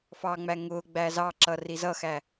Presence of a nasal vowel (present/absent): absent